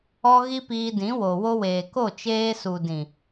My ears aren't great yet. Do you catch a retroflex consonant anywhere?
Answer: no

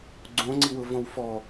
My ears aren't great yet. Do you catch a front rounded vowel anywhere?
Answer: no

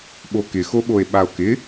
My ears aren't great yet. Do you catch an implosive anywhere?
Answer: yes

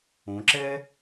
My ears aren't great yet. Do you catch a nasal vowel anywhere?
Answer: yes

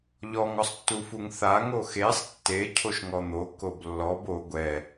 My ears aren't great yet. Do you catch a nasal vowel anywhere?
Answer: no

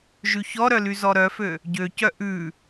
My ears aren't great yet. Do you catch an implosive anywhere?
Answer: no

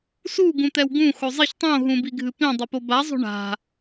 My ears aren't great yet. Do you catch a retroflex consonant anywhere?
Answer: yes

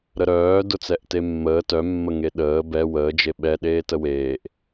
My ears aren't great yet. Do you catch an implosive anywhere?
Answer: yes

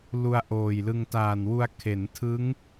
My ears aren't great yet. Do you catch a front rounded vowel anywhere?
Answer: no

